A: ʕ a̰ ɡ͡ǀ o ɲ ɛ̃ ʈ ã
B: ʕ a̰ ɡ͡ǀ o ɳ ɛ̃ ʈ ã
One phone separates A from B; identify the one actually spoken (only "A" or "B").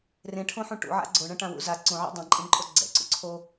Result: B